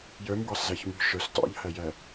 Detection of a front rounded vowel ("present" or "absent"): present